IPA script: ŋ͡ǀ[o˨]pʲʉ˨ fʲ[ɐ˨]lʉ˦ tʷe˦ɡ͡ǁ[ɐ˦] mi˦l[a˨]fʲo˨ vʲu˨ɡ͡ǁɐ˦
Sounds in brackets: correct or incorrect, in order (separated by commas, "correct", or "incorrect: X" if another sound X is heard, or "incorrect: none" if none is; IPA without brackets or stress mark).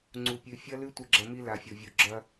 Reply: incorrect: u˨, incorrect: ɐ˦, correct, correct